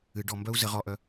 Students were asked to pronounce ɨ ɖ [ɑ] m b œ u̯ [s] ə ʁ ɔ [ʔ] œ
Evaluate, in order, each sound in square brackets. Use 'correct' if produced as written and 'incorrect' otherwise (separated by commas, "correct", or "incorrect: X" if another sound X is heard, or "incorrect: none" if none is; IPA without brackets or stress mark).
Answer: incorrect: ɔ, incorrect: z, correct